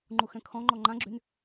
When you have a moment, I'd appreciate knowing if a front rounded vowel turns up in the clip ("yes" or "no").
yes